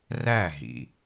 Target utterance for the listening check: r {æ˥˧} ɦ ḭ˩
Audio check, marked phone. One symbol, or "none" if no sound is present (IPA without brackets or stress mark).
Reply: æ˥˩